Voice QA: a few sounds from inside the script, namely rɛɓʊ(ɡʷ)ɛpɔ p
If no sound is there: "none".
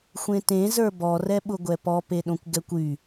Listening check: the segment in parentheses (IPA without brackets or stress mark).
ɡʷ